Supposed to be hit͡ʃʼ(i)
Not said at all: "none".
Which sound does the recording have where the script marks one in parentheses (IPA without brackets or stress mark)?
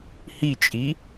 i